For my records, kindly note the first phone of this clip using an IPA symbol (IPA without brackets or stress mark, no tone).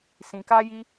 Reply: s